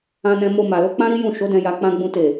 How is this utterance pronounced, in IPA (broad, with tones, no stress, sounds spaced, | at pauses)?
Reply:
ã˧ n ɛ̃˧ m o˧ m a˨ l o˨˦ k͡p ã˦ ɾ i˦ j ũ˦˨ ʃ o˨˦ d ɛ̃˧ j a˧ k͡p ã˦ ɡ͡b ũ˦ t e˦˨